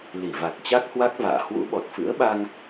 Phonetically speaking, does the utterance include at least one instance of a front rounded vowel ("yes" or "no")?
no